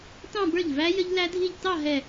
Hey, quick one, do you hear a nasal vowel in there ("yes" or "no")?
yes